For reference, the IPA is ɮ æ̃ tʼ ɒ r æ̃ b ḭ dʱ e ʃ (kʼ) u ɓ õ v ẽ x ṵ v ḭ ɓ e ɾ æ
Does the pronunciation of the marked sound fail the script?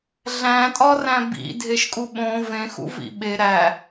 no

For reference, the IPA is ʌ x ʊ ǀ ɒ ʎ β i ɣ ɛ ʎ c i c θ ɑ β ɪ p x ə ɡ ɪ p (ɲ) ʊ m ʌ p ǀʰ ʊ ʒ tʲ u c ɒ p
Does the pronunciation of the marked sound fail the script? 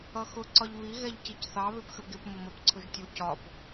yes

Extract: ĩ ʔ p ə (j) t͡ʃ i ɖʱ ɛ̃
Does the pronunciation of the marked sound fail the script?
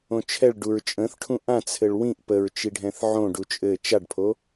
yes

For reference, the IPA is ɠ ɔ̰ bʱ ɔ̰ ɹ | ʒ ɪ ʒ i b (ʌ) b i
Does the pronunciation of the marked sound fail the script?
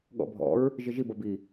no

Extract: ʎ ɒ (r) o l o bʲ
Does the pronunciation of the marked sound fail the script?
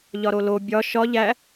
yes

